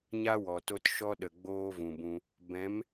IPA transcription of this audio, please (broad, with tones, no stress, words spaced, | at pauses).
ɲa˦wɔ˨to˧t ʃɔ˦ɗə˨ ɡ͡boː˦vũ˨bũ˧ | bɛ̃˨˦m